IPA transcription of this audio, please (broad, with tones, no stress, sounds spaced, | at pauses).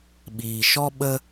ɓ iː˨ ʃ ɔ˦ ɓ ə˦